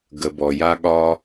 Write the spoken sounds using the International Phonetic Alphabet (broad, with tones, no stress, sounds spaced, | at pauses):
ɡ ə˨ b ɔ˩ j a˦ ɠ ɒ˦